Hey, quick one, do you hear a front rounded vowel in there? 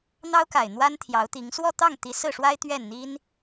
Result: no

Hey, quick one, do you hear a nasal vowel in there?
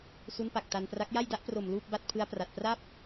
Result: no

